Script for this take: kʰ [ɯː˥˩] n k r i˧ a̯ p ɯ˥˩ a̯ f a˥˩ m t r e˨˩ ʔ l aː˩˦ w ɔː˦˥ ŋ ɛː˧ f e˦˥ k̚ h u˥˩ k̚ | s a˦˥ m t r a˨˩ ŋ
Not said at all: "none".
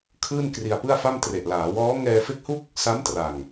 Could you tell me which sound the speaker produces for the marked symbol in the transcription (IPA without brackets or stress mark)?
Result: ɯː˥˩